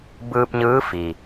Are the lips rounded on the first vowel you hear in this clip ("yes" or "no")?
no